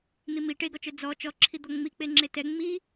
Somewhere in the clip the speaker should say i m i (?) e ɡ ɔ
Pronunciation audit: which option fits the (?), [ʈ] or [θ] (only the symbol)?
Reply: ʈ